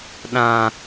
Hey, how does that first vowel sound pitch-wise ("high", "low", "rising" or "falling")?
low